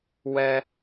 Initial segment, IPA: w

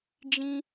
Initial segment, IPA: d͡ʒ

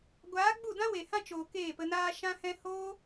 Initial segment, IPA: ɡʷ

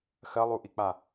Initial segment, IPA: x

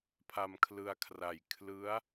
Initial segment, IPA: pʰ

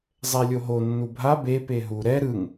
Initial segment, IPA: zˤ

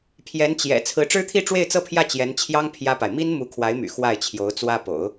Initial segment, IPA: pʰ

